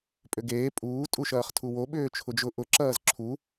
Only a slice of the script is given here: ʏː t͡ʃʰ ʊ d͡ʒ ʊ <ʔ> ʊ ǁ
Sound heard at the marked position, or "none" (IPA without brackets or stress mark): ʔ